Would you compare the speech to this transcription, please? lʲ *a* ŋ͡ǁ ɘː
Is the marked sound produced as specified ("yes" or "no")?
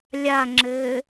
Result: yes